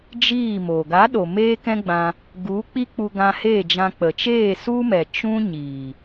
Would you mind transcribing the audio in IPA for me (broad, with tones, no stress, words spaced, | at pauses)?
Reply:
d͡ʒiː˦˨mo˨ ɡa˨˦ɗo˨ meː˦kɛ̃˦ɡ͡bã˧ | ɡu˨˦k͡pi˦k͡pu˧ ɡã˧heː˦˨d͡ʒã˧ k͡pə˨t͡ʃeː˦˨su˦mɛ˨ t͡ʃũ˦ ɲiː˨